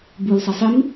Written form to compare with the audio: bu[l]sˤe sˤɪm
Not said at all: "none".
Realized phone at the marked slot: l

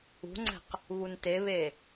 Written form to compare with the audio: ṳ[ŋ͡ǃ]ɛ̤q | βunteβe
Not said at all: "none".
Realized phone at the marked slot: ŋ͡ǀ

